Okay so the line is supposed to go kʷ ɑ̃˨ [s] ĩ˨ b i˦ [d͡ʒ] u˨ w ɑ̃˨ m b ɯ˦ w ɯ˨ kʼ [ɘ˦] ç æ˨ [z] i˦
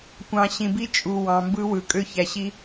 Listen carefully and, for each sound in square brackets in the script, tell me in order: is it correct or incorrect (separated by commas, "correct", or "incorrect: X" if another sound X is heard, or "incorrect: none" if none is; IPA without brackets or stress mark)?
incorrect: ɕ, incorrect: t͡ʃʼ, incorrect: ø˦, incorrect: ɕ